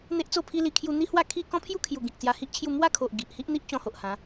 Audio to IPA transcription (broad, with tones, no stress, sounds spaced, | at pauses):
n̪ e˦ ʔ t͡s o˥˧ pʰ i˦ l i˧ kʰ j u˧ n̪ i˦ h w a˥˧ kʰ i˥˧ k ɔ̃˦ pʰ j u˦ kʰ j u˨˩ ɡ ĩ˨ k̚ t͡s j a˧ h i˦ ʔ t͡ɕʰ j u˥˧ m w a˦ kʰ o˨ ʔ ɡ i˨ ʔ h i˦ ʔ n̪ i˦ ʔ t͡ɕ ɔ̃˧ h o˨ ʔ h ã˨˦